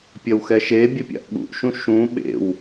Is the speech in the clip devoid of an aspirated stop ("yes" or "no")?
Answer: yes